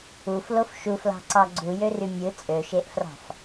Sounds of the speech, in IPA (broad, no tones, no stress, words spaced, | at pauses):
uflof ʃuflɑ̤ǀɑ ɡ͡ǀujøry mʲɯ t͡sʼøʃeʔfrɑ̤f